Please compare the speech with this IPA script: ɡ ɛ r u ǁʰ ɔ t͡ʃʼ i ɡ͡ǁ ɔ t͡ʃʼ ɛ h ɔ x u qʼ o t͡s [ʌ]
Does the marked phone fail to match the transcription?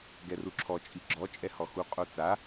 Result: yes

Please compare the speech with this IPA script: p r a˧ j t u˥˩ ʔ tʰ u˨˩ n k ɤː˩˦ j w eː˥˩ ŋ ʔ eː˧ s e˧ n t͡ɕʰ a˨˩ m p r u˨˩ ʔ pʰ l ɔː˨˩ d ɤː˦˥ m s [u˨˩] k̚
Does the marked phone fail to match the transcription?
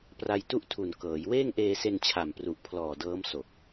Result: yes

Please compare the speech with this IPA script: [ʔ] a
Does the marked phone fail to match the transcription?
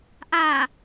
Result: no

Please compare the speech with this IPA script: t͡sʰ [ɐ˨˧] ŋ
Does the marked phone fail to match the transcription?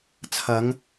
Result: no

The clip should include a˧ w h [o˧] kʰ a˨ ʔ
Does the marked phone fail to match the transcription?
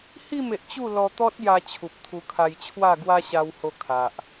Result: no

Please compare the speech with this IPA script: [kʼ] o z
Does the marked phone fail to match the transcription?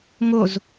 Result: yes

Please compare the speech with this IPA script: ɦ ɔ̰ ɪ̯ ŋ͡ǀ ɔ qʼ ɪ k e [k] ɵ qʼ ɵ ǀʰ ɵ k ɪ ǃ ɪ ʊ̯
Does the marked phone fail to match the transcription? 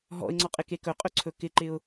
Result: no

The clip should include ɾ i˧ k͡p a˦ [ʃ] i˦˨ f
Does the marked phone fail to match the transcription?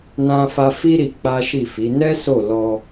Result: no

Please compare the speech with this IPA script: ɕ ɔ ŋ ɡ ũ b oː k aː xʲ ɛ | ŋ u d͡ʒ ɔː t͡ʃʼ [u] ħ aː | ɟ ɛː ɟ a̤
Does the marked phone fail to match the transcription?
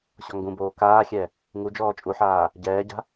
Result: no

